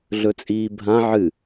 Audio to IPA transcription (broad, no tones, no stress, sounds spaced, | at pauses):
ɮ ɵ t͡sʼ iː bʱ ã ʕ ɨ